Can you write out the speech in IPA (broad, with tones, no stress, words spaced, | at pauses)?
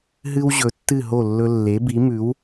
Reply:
ɦɨ˥w ʑɵ˩˥tːɨ˥˩ɦo˥˩ lːɵ˧ lːe˩˥bi˩˥mʉ˩˥w